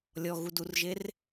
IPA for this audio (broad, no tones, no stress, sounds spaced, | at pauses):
lʲ ɔ ɣ u d u r ʒ e r